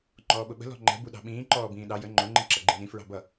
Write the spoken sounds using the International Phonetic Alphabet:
ŋ͡ǃɔːɓʊɓə̤ lɔ̤ŋ͡ǃɛ̤ buɗɑ̤ɓĩː ǃɔːbĩːɗɑ jə ŋ͡ǃʊ ŋ͡ǃĩǁʌɡ͡ǃĩnĩ fɹɑ̤bʌ

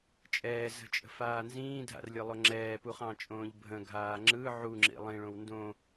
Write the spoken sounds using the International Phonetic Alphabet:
t͡ʃʼɛːzə̤t͡ʃʼə̤faː nzĩːdʱa̰rlʲɯlˠʊ ŋ͡ǁɛːpuχɑ̃t͡ʃʼõːʎ bʱə̃ɡʱaː ŋ͡ǁɯ ʕuŋ͡ǁḭ lˠĩɭõw ndõ

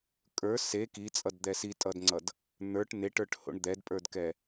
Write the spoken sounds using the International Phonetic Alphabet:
kʼə˞ se kit͡sʼʌdd̪ɛ sitʼʌdŋ͡ǀʌd | n̪ə˞ʈ neʈə˞ʈho̰ɳ d̪ɛdpʼə˞dkɛ

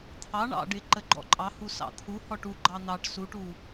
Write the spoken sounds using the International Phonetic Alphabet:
t̪ʰɑ ɳɑ̰ɖɪ ǃəɡ͡ǃɔ̰ǃʼɑhu sɑ̰t̪ʰu hɔʈu ɡ͡ǃɑn̪ɑʈ suʈu

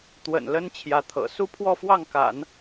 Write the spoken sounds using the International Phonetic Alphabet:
t̪wə̰˨˩n lə˥n t͡ɕʰjä˧˥t̪ʰɤ̰˨˩ su˥˧pʰwɔ˥˧fwɑ˥˩ŋka̰˨˩˦n

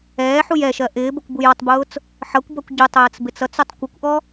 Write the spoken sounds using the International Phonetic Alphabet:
ɛːħuj ɛʃɜ ʔɪːbəkʷ bujɔtˤbʊːt͡s | ħʌkʷbʌkʷ ɟʊtˤəːt͡s bɪt͡sʌt͡sʊtˤ kʷəkʷʔɔ

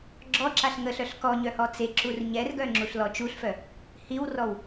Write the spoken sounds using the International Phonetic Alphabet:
ɡ͡ǁɔǁaɬ ŋəɬœɬ kɔɲœ hɔt͡seǁur ɲɛrɡœ ŋ͡ǁuɬlɔt͡ʃuɬfœ | hiwrɔw

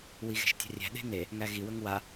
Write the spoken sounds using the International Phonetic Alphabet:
wiɣe̤ʃtʲa̤rʲæ̤ ɗe̤ne | ŋæɣi wɵŋwa

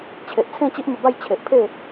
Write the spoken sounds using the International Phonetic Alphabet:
t͡ɕʰe˨ʔ t͡sʰẽ˥˧t͡ɕi˦ʔmə˧ba˥˧j t͡ɕʰe˨ʔpʰe˥˧

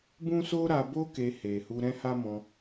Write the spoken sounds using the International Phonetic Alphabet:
bũ˦so˦ɾa˧bo˦ ke˧he˨ hu˧ɾɛ̃˦ ha˦mɔ̃˧

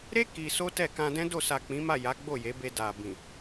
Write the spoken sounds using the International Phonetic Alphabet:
ɾe˦ ki˧so˦tɛ˦˨ kã˧dɛ̃˦do˦˨ sa˨ k͡pĩ˨˦ma˦˨ ja˨˦ ɡ͡bo˦˨je˨˦be˧ da˨bĩ˨

